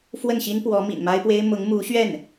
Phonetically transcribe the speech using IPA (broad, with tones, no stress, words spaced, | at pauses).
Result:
fwə˥˩nɕi˥n pwɔ˧˥mḭ˨˩nma˥ɪ̯pwe˥ɪ̯ mʊ˧˥ŋmu˧˥ɕɥɛ˥˩n